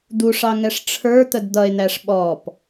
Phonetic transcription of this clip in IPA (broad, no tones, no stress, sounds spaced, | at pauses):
d̪ u ʂ ɑ ŋ ɛ ʂ ʈ͡ʂʰ ə˞ t̪ ə d d̪ ʌ e̯ n̪ æ ʂ ɓ ɔ p